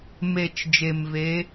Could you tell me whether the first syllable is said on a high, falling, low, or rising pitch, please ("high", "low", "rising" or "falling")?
low